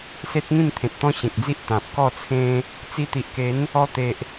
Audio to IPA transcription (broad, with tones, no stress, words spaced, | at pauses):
se˦t̚ŋĩ˥˧mt̪ʰẽ˨t̚t̪ɔ̃˦ ɕẽ˨k̚d͡zi˦ʔ t̪ã˨p̚ kɔ˥˧t͡sʰẽ˦ | t͡si˧t̪i˨ʔke˨˦n | ɔ˧t̪e˨ʔ